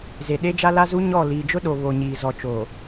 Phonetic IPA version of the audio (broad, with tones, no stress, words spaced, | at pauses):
ze˨ ɗe˦d͡ʒa˦la˦zu˦ ɲɔ˦˨ liː˨d͡ʒʊ˦ɗo˨ βo˨ɲiː˨ zɔ˨ t͡ʃo˨